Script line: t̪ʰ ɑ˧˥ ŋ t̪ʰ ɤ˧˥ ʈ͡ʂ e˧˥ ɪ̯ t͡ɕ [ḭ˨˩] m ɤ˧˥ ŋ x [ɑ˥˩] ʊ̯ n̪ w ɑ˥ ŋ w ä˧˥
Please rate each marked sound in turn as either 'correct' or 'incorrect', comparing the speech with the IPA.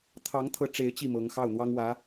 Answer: incorrect: i˥˩, correct

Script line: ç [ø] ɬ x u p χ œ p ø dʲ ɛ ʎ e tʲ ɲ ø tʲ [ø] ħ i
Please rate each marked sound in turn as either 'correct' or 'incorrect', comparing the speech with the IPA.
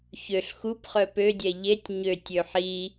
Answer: correct, correct

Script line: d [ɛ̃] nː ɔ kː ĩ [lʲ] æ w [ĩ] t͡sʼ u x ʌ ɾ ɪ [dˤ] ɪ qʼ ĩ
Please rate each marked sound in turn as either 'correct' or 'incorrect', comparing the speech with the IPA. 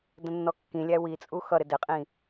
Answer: incorrect: ə̃, correct, incorrect: i, incorrect: d

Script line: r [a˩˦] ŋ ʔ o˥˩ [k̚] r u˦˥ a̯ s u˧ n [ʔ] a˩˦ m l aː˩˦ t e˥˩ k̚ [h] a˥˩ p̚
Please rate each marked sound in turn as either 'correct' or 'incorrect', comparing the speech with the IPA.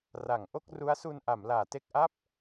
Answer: correct, correct, correct, incorrect: ʔ

